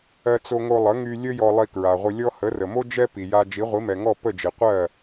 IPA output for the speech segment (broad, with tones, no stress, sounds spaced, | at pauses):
ɜ˧ t͡s o˧ ŋ o˧ lˠ ə˩˥ ŋ y˧ lʲ ə˥ j ɔ˧ lˠ i˧ k ɹ a˩ ʁʷ ə˧ lʲ ɔ˥ h ə˩˥ r ə˩ m o˥ d͡ʒ ɛ˥ p i˩ j a˧ d͡ʒ i˩˥ ʁʷ i˩˥ m ɛ˩ ŋ ɔ˥˩ p ə˥˩ d͡ʒ i˩ qʷ ɜ˥˩